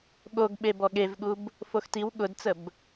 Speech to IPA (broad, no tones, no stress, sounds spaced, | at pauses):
ɠ o ɡ ɓ e b ɔ ɠ e v ɠ u b | f o x t i w ɠ ʊ d t͡s ə b